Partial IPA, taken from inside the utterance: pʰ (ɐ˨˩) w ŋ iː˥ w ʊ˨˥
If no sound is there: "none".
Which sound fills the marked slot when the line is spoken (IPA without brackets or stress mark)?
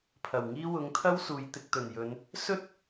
ɐ˨˩